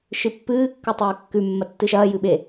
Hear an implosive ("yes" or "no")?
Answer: yes